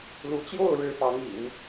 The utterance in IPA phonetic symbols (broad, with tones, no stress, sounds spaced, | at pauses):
l u˧˥ t͡ɕ j o˥˩ ʊ̯ ɻ ɻ̩˥ f ɑ˧˥ ŋ ḭ˨˩˦ n